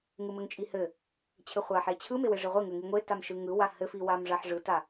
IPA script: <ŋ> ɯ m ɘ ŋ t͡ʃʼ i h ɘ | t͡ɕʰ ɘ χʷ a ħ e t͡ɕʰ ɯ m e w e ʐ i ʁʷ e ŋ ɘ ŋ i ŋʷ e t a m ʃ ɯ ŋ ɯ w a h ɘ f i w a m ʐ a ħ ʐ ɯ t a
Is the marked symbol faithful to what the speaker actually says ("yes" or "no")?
yes